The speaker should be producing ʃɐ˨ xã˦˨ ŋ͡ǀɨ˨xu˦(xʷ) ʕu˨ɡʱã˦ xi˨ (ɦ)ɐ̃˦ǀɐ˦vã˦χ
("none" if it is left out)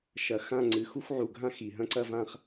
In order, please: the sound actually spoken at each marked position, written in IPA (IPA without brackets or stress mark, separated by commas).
xʷ, ɦ